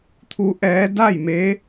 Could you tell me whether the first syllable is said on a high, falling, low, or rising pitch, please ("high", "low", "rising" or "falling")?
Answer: rising